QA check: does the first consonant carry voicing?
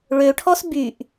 yes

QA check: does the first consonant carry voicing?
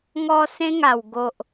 yes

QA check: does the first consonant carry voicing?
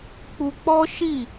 no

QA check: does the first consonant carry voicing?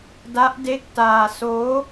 yes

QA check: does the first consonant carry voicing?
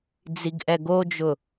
yes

